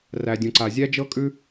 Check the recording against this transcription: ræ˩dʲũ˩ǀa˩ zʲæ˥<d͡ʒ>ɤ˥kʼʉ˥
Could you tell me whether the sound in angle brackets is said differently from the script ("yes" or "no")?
no